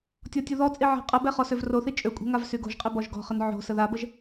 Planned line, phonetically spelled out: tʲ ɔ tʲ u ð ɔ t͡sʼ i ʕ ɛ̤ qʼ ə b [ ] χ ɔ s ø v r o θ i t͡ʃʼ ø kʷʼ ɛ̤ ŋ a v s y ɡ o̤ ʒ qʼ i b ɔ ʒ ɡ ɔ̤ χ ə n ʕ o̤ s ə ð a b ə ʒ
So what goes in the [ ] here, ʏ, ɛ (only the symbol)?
ɛ